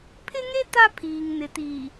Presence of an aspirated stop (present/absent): present